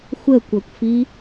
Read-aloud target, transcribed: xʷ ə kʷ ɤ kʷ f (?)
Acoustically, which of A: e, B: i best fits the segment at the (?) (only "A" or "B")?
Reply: B